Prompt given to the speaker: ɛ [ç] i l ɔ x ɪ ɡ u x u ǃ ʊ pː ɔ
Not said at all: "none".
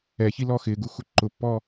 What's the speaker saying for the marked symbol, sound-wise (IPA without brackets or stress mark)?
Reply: ç